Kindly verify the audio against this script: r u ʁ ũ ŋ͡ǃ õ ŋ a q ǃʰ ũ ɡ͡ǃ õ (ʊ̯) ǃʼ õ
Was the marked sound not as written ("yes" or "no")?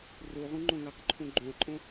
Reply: yes